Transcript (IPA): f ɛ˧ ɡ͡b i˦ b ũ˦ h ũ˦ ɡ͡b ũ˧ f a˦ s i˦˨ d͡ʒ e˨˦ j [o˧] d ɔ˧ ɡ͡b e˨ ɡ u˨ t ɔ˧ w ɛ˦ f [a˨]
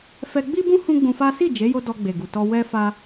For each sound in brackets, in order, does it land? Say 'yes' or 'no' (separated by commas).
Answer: yes, no